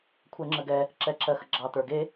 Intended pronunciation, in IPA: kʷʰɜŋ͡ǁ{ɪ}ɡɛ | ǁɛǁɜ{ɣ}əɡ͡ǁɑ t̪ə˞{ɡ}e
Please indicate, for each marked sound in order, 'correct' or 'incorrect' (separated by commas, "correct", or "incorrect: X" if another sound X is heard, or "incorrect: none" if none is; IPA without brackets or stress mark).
incorrect: ə, incorrect: x, correct